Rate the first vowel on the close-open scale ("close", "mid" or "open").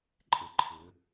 mid